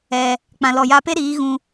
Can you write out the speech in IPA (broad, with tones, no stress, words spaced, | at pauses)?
ɛ˧ | k͡pã˨lɔ˨ ja˧pe˦ɾiː˨˦ ɣũ˧